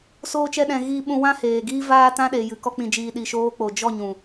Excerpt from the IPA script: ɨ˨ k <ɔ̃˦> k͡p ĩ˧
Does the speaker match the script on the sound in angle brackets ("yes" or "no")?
no